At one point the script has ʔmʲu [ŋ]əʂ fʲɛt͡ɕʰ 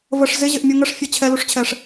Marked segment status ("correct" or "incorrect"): correct